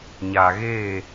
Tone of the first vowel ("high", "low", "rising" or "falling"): low